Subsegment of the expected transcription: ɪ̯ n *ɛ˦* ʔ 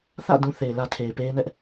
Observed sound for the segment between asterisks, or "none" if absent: ɛ˦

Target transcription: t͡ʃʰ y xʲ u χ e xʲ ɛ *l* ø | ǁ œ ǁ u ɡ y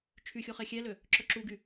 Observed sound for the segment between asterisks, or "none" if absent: l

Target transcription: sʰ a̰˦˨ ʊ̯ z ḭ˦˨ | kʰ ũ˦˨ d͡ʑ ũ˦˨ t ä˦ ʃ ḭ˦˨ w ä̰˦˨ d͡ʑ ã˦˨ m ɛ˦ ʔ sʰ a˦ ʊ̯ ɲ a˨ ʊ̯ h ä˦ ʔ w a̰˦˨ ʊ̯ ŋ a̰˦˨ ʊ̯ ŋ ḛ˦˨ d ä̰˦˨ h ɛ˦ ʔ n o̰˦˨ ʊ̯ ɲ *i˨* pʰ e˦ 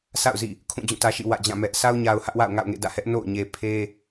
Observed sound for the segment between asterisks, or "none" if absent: e˨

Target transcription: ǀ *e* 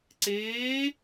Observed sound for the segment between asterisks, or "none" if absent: eː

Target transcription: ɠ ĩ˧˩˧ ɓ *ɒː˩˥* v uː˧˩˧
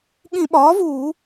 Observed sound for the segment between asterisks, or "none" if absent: ɒː˩˥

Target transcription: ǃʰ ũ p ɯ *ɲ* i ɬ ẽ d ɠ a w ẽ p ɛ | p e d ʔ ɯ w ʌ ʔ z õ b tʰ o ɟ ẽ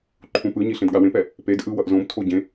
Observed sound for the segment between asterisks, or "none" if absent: ɲ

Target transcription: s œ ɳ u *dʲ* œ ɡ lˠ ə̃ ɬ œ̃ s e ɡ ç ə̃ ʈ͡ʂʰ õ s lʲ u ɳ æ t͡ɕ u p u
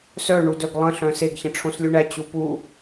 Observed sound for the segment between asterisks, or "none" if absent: d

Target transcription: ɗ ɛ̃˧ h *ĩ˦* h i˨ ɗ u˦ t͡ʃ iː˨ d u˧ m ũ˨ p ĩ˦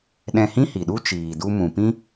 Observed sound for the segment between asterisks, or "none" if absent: ĩ˦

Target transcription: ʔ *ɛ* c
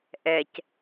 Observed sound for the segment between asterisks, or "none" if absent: ɛ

